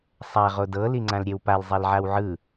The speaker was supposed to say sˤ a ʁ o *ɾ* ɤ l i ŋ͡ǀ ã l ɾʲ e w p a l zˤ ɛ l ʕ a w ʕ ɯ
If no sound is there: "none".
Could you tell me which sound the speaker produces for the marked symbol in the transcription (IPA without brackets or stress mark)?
d